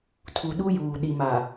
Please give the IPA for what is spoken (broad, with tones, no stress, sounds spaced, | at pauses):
tʰ u˨ ɗ u˦ j uː˨ ɗ i˨ m a˨